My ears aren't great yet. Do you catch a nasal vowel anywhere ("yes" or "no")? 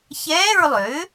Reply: no